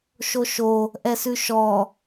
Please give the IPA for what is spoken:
ʃoʃo | ʔɛsʉʃɔ

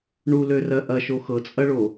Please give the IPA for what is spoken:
ɳulørɜ ʔɐʃo xɤt͡sʼɐɭo

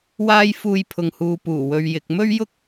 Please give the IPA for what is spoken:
waː˥j fuː˧jpʰʊ˨ŋhuː˨ puː˨˩ wɵ˨ɥjɪ˨k̚ mɵ˥ɥjʊ˥k̚

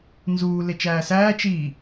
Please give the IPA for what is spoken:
nzuː let͡ʃæːsæː t͡ʃiː

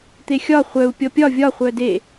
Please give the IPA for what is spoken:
t̪exʲɒ χʷœu̯ pʲɔpʲɒ vʲɒ χʷœde

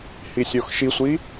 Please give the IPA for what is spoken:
hisʲoxʃisʷi

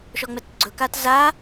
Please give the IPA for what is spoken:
ʃɔŋ͡mɛtɡ͡ǀɵkat za

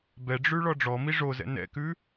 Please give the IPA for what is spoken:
bɛɖ͡ʐʉ ɭɔɖ͡ʐɔmi ʐozɛ̰ nɛ̰kʉ

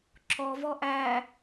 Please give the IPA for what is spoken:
ǁɔvɔ ʔæ

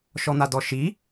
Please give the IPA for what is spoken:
ʃɔn̪adɔʃi

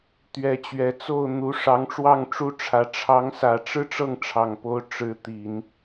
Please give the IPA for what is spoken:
t̪ɥɛ˧˥t͡ɕɥɛ˨˩t͡so˥˩ʊ̯n̪u˧˥ ʂɑ˧˥ŋʈ͡ʂwɑ˥˩ŋʈ͡ʂu˥ʈ͡ʂʰä˧˥ ʈ͡ʂʰɑ˧˥ŋsä˨˩ʈ͡ʂɻ̩˥˧ ʈ͡ʂɤ˥˩ŋʈ͡ʂʰɑ˨˩ŋpo˧˥ʊ̯ ʈ͡ʂɻ̩˧˥ t̪i˨˩˦n

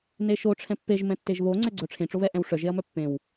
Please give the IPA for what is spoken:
neʃo ʈ͡ʂʰɛ̃pːeʒ mɛ̃tːeʒβo ŋ͡ǀɛɡ͡ǀœʈ͡ʂʰẽ ʈ͡ʂoβɛʔɛ̃wʂœ ʒeɐ̯mœpːẽw

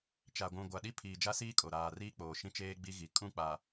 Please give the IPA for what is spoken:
t͡ʃa˨ɡʷũ˨ ɡʷa˨ɗi˦ pʰiː˨d͡ʒa˦siː˦ kʼo˨ɾaː˨riː˦k͡poː˨ ʃĩ˦t͡ʃeː˦ɡ͡bi˦ɣi˨ kʼũ˦˨k͡pa˨

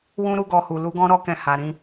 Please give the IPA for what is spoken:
wũ˦ɾu˦ɡɔ˧hu˨ lu˨˦ɡɔ̃˦ɾɔ˦kɛ̃˧ ha˨ɾĩ˧

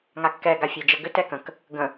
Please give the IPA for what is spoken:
ŋakːɛ ɡafʲɛd͡ʒəɡʏ tɛkə̃k | ɡə̃

